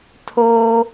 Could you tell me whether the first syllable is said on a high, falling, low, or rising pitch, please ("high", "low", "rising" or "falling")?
high